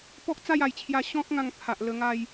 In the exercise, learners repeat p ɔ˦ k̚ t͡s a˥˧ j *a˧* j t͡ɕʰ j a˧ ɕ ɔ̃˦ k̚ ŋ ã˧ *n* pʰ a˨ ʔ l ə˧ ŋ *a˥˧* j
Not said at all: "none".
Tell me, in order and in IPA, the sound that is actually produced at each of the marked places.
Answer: a˨˩, ŋ, a˥˧

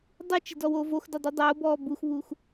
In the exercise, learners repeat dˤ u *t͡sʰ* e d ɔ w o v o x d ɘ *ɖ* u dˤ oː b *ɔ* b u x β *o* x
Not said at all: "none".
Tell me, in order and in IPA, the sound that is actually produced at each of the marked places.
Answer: t͡ʃ, dˤ, ɔː, u

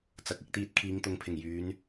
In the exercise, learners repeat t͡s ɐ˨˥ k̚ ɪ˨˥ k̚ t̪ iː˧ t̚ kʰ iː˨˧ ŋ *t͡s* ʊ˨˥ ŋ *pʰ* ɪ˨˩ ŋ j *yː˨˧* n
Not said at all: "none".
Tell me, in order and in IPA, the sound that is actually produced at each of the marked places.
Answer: t̪, pʰ, yː˨˧

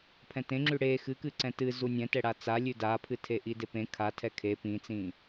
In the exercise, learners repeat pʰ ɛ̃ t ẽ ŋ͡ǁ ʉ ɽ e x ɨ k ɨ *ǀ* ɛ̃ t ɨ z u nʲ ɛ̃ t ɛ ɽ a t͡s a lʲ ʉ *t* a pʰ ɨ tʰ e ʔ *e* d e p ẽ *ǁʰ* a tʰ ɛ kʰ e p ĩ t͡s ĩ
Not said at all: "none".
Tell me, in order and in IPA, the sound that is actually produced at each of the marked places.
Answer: ǀ, d, i, kʰ

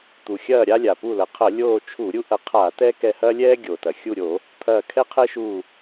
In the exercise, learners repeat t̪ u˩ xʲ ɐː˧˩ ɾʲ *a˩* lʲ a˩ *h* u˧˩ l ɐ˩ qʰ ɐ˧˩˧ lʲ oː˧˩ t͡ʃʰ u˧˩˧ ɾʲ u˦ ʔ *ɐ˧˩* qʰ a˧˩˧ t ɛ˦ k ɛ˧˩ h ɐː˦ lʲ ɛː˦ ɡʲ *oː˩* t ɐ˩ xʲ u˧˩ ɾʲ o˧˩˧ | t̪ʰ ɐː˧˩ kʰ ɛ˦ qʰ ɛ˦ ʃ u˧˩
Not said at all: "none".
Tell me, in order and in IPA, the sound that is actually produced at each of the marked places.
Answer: a˦, p, ɐ˧˩, o˩

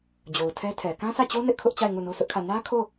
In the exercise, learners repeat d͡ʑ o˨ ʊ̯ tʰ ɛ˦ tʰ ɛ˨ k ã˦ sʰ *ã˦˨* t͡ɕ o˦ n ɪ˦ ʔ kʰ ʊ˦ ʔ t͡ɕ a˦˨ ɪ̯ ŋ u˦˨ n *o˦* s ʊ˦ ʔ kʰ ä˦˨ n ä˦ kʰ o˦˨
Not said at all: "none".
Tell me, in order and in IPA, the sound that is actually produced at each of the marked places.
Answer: ä˦˨, o˦

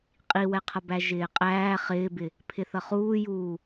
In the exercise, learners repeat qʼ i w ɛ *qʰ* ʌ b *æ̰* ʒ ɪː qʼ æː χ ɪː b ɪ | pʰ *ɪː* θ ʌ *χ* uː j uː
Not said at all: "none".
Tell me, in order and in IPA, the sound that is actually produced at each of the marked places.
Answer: qʰ, æ, ɪ, χ

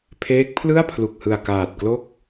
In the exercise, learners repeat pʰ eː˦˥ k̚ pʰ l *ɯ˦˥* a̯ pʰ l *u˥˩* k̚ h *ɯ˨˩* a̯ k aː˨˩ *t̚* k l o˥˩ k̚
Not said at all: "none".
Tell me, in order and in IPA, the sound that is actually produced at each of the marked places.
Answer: ɯ˥˩, u˨˩, ɯ˨˩, t̚

